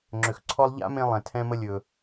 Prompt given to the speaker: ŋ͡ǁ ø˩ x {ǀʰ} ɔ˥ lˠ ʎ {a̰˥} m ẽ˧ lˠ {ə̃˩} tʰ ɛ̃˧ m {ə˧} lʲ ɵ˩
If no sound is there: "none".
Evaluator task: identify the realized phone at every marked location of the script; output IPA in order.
ǀʰ, a̰˥, ɛ̃˩, ə˧

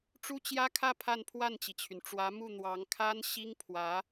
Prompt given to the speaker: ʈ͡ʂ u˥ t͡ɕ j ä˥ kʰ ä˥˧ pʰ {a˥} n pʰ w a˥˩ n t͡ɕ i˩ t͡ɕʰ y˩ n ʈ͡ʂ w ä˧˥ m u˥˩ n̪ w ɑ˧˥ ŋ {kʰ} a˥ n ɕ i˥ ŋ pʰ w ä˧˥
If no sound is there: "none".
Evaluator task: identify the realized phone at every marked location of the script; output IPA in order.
a˥˧, kʰ

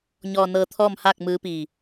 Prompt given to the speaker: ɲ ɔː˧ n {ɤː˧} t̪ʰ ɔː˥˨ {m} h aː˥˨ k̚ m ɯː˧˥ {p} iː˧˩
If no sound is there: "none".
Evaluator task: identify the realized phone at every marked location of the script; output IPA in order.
ɤː˧, m, p

